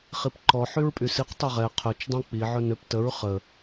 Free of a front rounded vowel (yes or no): no